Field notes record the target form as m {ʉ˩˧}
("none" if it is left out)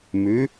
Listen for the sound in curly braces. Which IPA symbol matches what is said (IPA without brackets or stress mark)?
ʉ˩˧